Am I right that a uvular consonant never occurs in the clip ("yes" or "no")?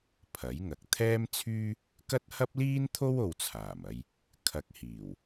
yes